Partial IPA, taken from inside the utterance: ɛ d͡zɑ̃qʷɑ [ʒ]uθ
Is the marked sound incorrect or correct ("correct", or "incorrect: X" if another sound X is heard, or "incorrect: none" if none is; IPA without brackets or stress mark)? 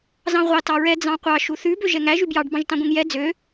incorrect: ʃ